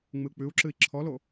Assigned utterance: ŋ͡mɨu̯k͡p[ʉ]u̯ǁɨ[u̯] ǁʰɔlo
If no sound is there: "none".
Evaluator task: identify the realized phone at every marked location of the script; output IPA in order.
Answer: ʉ, i̯

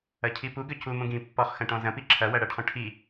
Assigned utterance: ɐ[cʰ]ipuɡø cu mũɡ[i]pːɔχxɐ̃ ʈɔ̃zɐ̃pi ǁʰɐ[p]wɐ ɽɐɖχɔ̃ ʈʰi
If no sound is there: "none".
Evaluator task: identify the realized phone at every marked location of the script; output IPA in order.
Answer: cʰ, ĩ, none

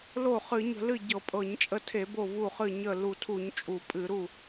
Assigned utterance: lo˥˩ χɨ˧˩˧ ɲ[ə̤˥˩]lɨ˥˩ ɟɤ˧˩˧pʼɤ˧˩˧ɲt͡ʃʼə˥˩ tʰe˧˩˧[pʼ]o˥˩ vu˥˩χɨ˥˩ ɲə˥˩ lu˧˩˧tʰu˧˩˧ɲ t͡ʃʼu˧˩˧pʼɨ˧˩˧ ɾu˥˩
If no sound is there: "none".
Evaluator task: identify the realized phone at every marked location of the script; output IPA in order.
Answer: ə̤˧˩˧, b

